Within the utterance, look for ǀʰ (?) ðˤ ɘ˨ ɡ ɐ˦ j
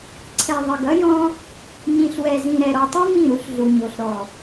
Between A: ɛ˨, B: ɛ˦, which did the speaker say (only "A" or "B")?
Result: A